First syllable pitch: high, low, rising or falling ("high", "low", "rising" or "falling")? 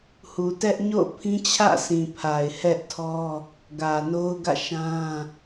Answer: low